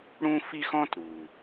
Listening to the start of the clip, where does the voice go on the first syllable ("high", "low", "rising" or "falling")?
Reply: high